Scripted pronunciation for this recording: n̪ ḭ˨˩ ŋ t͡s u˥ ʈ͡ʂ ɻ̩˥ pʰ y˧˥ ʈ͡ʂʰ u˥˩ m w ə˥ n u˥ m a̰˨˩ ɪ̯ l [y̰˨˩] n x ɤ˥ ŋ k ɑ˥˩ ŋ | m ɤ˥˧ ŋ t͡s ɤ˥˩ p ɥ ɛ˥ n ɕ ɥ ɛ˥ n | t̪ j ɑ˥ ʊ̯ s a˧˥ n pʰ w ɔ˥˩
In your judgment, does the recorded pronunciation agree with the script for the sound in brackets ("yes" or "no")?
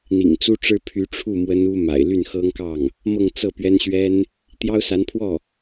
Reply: no